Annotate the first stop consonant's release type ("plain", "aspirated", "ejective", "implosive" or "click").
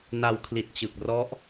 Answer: aspirated